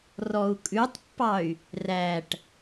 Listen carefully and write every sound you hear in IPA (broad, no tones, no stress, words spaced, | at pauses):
rɔu̯kʼʉtˤpːɑy̯ | ræʈ